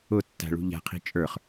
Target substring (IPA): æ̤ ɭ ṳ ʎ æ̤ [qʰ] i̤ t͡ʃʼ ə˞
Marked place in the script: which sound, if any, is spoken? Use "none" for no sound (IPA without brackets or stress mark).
qʰ